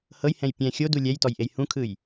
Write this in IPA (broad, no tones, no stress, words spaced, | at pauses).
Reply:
hɤjhɛ̃j pʲɛ̃ xʲodu lʲɛjtɔjʔej hũkʰɯj